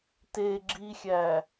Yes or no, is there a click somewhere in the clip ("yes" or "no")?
yes